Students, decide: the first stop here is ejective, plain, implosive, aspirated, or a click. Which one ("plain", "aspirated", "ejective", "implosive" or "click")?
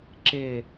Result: click